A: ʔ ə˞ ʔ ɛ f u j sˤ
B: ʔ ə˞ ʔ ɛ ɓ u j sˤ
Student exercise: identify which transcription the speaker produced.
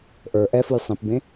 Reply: A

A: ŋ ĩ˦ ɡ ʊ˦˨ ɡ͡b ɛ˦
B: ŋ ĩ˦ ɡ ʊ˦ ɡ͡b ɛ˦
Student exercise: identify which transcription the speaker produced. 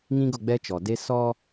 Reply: A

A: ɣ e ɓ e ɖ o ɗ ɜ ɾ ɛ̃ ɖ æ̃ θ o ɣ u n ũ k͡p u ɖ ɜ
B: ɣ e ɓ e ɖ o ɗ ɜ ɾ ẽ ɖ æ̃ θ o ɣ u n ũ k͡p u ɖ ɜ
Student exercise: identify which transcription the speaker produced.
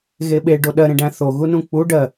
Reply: B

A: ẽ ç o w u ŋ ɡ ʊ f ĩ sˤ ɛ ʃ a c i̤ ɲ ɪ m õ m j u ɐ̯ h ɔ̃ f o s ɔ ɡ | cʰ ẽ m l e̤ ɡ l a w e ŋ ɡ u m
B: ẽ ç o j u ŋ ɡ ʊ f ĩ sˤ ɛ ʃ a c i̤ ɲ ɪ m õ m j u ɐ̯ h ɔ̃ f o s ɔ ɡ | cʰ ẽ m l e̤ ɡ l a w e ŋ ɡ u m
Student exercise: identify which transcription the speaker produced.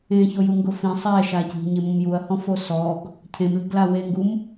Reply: B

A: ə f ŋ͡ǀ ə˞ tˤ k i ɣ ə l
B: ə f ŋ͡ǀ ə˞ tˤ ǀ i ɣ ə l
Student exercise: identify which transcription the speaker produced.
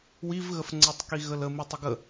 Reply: A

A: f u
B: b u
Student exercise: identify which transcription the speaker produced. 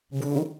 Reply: B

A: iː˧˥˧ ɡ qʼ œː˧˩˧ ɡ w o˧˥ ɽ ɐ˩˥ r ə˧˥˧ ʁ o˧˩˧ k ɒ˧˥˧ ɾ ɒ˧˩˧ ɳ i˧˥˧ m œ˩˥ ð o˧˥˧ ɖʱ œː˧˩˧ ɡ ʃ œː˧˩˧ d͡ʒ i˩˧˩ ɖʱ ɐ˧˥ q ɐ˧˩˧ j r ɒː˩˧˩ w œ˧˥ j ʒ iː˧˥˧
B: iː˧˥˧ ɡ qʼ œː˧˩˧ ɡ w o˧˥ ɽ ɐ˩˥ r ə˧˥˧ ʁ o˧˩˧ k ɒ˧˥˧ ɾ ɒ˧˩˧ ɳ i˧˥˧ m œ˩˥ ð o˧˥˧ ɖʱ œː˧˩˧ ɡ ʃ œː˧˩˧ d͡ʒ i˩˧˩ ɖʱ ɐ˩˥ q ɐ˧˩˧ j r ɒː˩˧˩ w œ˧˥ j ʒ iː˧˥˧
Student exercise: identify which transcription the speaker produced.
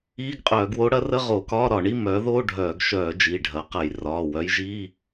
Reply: B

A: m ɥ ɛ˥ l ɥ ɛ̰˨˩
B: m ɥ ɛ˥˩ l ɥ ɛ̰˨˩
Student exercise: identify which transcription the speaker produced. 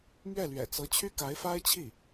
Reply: B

